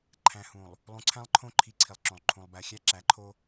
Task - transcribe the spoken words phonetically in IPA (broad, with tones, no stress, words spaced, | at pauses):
ǃʰæ̃˨hũ˨lˠ | lˠũ˨ǀʰæ̃˦lˠǃʰõ˦˨ ǃʰi˦ǀʰi˨lˠǁõ˨lˠ ǃʰũ˨lˠ bæ˨xʲæ˦ǁæ˨˦ǃʰo˦